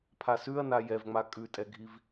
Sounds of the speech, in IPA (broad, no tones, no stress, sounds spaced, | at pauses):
pʰ a s ʉ ɐ̯ n a j ɛ v ŋ͡m a kʼ ʉ tʼ ɛ ɡʱ i v